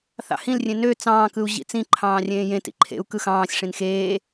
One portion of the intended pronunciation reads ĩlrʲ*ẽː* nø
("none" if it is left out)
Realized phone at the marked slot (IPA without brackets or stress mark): ẽ